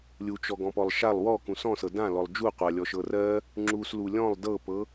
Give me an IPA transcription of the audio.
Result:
lʲ u t͡ʃ ɔ ɡ ɔ̃ p ɔ lˠ ʃ a lˠ w ɔ k ũ s ɔ̃ s ɤ d ã l ɔ lˠ d͡ʒ u qʷ a lʲ ɔ ʃ ɤ r ɜ | ŋ͡ǁ u s l u lʲ ɔ̃ lˠ d ɤ p ɤ

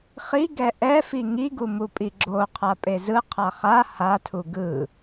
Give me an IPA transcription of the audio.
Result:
χ i ɡ ɛ ʔ ɛ f i ŋ i ɡ u m u pʼ i ɡ͡ǁ o qʰ a pʼ e z ɯ qʰ a χ a h a tʰ u ɡ ɯ

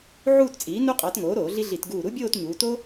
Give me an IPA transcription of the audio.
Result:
ʕ uː˥˧ t t͡sʼ iː˩˥ n u˥ qʼ ɑ˩˥ t ŋ oː˩˥ ɾ oː˧˩˧ ɮ i˥ ɮ i˧˩˧ t ɡ uː˧˩ ɾ u˥ bʲ oː˥˧ t ɲ uː˩˧ t o˥

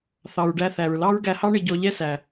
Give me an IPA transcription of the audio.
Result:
θ ɑ˩ ɹ ɖ æ˧ θ æ˩ ɹ l ɑ˥ ɹ ɡ æ˧ h ɑ˥ ɳ ɪ˧ ɟ ɔ˧ ʎ ɛ˥ s æ˩

